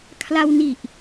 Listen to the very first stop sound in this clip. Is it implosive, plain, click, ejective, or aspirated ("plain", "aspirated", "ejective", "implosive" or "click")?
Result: aspirated